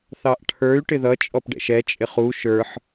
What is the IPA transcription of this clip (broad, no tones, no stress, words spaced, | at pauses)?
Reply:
θɑʔʈʰə˞y̯ ʈɪðʌ t͡ʃʼɔpɖɛ̰ʃɛ t͡ʃʼɪχu ʃə˞ħ